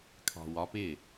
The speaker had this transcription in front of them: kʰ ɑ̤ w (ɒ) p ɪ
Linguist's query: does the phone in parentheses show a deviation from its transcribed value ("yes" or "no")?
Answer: no